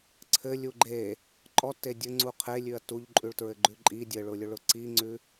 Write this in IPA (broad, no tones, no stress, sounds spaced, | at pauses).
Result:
ǀʰ ɘ lʲ u ɡ͡ǃ e | ǃʼ ɔ tː e dʲ ɘ ŋ͡ǀ u qʰ e lʲ ʉ ɐ̯ t u ʎ ǃʼ ʉ ɭ t ɹ ɘ ɡ͡ǃ ʉ ǃʼ i dʲ ɘ ɭ ʊ lʲ ʊ ɭ ʊ ǀ i ŋ͡ǀ ʉ